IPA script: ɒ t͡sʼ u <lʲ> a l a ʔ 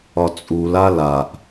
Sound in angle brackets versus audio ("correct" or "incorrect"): incorrect